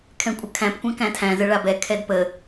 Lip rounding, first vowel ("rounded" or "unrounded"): unrounded